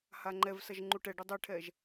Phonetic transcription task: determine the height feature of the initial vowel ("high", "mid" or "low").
low